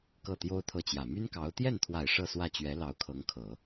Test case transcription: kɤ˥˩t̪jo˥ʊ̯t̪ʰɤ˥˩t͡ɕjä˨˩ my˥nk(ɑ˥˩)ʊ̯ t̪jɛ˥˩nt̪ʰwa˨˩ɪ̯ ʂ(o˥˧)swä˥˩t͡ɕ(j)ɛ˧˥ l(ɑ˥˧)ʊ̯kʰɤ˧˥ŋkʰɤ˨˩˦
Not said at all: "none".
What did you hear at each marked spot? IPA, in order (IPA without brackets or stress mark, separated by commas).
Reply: ɑ˧˥, ɤ˥˧, ɥ, ɑ˧˥